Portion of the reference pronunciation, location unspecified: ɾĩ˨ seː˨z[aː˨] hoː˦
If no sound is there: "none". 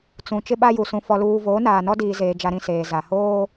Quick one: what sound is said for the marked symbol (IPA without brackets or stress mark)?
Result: a˨